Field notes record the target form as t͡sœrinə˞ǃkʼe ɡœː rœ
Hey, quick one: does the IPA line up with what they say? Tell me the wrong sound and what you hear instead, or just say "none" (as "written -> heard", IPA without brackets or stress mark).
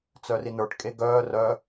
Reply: ǃ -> ʈ